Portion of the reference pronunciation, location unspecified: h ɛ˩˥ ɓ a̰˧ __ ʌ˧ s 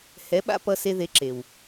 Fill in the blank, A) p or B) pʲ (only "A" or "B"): A